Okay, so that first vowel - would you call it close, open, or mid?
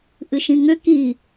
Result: close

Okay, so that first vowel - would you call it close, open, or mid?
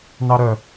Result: open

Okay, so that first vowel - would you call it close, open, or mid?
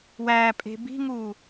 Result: open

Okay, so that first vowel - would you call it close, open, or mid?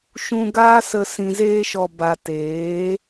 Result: close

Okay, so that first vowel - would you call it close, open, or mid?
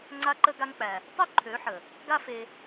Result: open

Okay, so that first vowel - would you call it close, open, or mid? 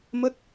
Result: mid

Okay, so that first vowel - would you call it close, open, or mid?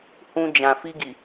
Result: close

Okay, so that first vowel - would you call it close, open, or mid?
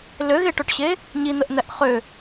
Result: mid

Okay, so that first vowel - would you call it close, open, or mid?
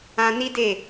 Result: open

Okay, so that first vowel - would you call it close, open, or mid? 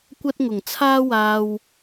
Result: open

